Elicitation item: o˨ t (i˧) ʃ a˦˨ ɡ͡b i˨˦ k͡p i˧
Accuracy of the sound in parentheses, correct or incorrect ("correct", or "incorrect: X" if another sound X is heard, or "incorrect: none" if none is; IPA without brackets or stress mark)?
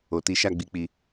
incorrect: i˨˦